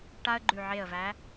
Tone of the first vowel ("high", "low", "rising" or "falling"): high